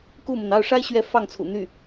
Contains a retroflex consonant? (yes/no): yes